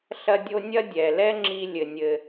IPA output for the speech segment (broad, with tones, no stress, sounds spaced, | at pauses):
ɬ ɐ˥ dʲ o˥ nʲ ɐ˥ dʲ ɛ˩ l ɛ˥ ŋ͡ǁ i˧ lʲ ɘ˩ nʲ ɘ˩